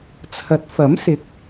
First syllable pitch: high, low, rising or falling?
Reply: rising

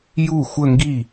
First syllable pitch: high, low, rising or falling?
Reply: falling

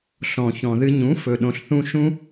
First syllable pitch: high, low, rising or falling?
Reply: low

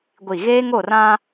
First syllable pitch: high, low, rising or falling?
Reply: falling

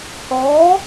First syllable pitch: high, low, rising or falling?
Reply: rising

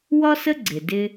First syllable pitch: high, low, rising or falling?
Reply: high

